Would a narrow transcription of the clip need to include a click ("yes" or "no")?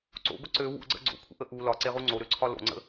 yes